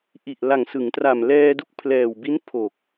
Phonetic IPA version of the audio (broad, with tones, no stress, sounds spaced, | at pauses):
ʔ i˨˩ ʔ l a˨˩ ŋ s ɯ˩˦ ŋ t r a˨˩ m l ɛː˧ d u˦˥ k̚ pʰ l ɛː˨˩ w b i˦˥ n pʰ o˨˩ k̚